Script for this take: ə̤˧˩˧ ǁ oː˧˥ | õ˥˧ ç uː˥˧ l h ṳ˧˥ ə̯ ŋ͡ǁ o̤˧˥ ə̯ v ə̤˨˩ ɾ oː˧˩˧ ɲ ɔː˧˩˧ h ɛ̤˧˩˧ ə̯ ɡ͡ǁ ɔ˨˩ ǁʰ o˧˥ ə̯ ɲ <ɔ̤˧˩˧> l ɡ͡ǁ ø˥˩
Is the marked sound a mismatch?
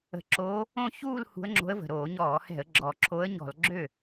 no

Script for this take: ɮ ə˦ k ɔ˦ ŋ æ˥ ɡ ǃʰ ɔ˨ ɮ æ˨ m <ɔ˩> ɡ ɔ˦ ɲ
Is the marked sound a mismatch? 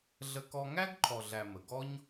yes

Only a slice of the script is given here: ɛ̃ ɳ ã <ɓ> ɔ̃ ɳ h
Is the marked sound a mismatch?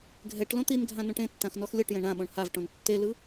no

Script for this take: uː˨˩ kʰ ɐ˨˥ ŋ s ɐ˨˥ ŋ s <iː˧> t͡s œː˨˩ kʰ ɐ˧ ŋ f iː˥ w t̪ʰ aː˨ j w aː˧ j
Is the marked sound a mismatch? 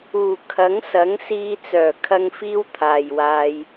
no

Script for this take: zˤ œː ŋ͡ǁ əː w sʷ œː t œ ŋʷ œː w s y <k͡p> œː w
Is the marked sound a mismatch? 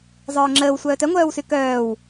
yes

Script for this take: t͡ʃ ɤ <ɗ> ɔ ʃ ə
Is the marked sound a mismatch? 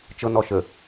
yes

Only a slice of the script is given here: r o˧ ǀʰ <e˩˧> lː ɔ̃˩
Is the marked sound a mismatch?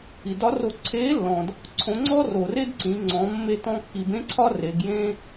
yes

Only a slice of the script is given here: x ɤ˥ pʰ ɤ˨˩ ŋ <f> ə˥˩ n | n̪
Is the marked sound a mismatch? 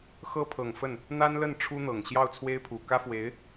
no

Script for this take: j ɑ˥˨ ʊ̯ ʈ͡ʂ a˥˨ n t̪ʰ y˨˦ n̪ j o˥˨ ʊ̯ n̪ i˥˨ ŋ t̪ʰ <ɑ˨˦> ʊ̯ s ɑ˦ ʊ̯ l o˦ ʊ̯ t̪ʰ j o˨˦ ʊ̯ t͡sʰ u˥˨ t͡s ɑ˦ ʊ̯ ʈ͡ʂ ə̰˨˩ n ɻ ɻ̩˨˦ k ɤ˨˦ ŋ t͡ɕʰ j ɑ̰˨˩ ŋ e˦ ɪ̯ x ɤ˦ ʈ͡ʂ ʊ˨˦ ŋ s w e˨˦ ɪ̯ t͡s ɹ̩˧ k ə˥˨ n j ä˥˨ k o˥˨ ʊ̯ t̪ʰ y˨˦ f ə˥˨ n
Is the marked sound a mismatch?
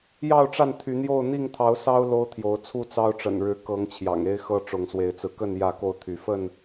no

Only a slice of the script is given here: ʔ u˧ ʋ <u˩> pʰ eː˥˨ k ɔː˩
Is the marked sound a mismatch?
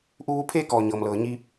yes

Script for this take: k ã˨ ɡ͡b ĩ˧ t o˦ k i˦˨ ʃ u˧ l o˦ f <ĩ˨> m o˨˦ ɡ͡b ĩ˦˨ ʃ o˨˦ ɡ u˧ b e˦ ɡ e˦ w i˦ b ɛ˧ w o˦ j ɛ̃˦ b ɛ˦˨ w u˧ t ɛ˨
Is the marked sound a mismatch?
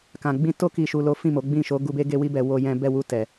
yes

